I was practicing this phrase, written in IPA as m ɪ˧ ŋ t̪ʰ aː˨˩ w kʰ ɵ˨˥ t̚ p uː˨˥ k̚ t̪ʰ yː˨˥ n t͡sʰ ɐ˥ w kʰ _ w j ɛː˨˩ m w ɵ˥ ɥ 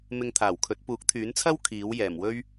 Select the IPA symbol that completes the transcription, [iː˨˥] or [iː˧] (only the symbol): iː˨˥